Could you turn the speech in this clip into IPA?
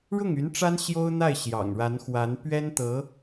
ɻʊ˥˩ŋy˧˥n ʈ͡ʂa˥n ɕjo˥ʊ̯n̪a˥˩ɪ̯ ɕjɑ̰˨˩ŋɻa˧˥nxwa˧˥n pɥɛ˥nt̪ɤ˧˥

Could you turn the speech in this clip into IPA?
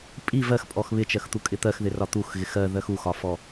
pʼi vɜxpʼɔx βɪt͡ʃɜxt̪u kʼɪt̪ɜxðɪ rɒt̪uxɣɪx ɜðɜx uxɒfɔ

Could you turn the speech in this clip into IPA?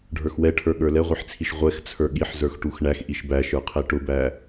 ɖʱə˞xwɛʈʰə˞ ɠə˞lɛʁʷiħt͡sʰiʃ ʁʷɛxt͡sʰə˞ ɠiħzə˞x ʈuxɳæx ʔiʃbæʃə˞qʰɛ ʈʊbæ

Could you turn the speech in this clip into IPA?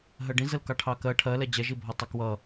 ɦɜɖĩzəl kɑʈʰɑkɜ ʈʰɜ lɛd͡ʑɛʒi bʱɒtˤɑkwʌ

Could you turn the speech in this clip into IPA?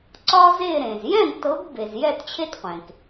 ǀɒ˥ze˥˨ ɾẽ˩z jɛ̃˥˨ɡtɤ˨˥ɡ be˩z jɛ˥˨tt͡ɕʰe˥tqʷẽ˩k

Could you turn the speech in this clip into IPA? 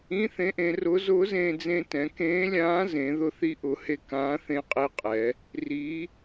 ĩ˧˥˧θẽ˧˥ʔẽ˩˧rʊː˧˥ zʊː˧˥zẽː˧ d͡zẽ˧tɛ̃˩˧ kẽː˧˥lʲãː˧˥zẽ˩˧ ðʊ˧θi˧˥ʔʊ˩˧he˧ kãː˧˥θẽ˧˥qʼe˧˥qʼɛ˩˧ | ri˧˥

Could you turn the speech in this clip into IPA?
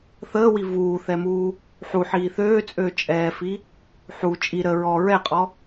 θəːwi vuːθɛmuː | ħuħiː θøːt͡sʼøː t͡ʃʼɛːfi | ħu t͡ʃʼi ɾə ɹɔ ɹɛqʼɔ

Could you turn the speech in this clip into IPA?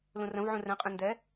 lũrə̃vʕũ rɛ̃qʼẽ ndɛ

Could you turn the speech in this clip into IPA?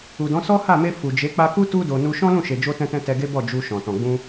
u˨dɔ̃˨˦ sɔ˦ha˦˨me˧ fu˨d͡ʒe˨˦ k͡pa˧ku˦ tu˧do˨ nu˧ ʃɔ̃˦lũ˦˨ʃe˨ d͡ʒo˧tɛ̃˧tɛ̃˧ tɛ˧ɡe˦bɔ˦˨ d͡ʒu˧ʃɔ̃˨ tɔ̃˨ɡ͡bũ˧

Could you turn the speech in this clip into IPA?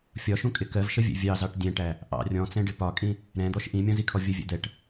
fʲɒʃũkʼɪ kɜvʃəvʲɛ̰ vʲɑzɑʈ dʲɛ̃ʈæ | ʔɑ̰ rʲɔ̃t͡sɛ̃ɖɪ pɒkʼĩ | ɾɛ̃d̪ɔʃ ʔĩmʲɔ̃zikʰɔ vʲəvʲɛ̰ d̪ɛʈ

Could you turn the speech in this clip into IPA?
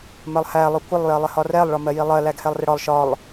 mɜlˠhæ lˠʊkʷɪlˠ jɜlˠɪhɒrɛlˠ ɭɒmɜjilˠɜ læɡhɛlˠrɪɽɒlˠ ʃɒlˠ

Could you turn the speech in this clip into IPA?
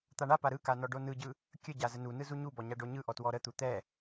t̪aɳapa ɾɯka nɔɖonɯɟɯ | kʲəɟa zənunɯ zuɲubɔ ɲaɖoɲɯʔɔ twɔɾət̪u t̪ɛ

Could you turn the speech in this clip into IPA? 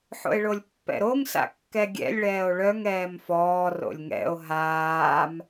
ħo̰e̯ɭolʲpːɛ̰ɾoŋ sa̰kːɛɡʲɛ̰lʲ ɭɛːo̯ɭœŋ ɛːmfɔː ro̰lʲŋɛ̰o̯ ɦaːm

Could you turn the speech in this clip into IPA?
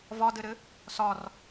vɒdɘɾɘ | sɒr

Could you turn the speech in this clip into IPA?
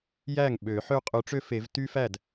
jæ˥˩ŋ ɓø˨˩˦ħø˥ qʼy˨˥ʈ͡ʂø˥fe˨˩˦v ty˥fæ˥˩d

